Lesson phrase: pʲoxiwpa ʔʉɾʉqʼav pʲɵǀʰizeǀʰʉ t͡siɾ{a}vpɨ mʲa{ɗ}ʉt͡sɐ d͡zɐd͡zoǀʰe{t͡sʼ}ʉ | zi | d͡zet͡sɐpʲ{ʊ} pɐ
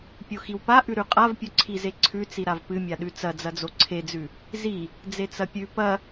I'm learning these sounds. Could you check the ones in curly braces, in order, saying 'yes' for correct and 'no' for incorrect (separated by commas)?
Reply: yes, yes, no, no